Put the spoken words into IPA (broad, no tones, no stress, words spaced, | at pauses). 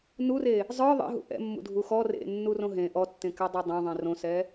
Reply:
nure | zˤə˞ ðˤḛɦṵ ʔɛ̰mːṵdʱu xɔ rḛnːurõ ɦẽ ʔɔtːẽkɛdˤe dˤõðˤẽ rõsɛ